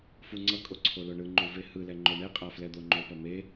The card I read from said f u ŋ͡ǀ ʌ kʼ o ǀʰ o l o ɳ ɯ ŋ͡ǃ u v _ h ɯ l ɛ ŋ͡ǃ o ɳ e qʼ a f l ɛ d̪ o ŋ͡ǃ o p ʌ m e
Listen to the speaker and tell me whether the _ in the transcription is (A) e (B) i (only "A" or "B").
A